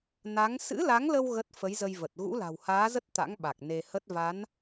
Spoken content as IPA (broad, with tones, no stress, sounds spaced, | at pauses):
n a˨˦ ŋ s ɨ̰˧˥ l a˨˦ ŋ l ə˧ w ɣ ə˦˥ t̚ f ə˨˦ j z ə˧ j v ə˨˩ t̚ ɣ ṵ˧˥ l a̤˨˩ w h aː˨˦ z ə˦˥ t̚ t̪ a̰˧˥ ŋ ɓ a˨˩ k̚ n e˧ h ə˦˥ t̚ v a˨˦ n